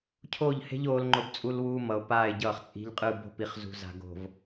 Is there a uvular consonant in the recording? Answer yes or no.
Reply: yes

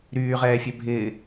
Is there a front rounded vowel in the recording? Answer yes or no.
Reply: yes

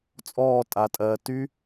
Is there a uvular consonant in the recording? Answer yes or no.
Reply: no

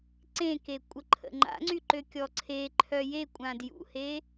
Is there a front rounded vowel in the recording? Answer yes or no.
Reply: yes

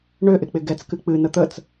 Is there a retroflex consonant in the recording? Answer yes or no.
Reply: yes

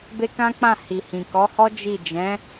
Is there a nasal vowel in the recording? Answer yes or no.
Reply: yes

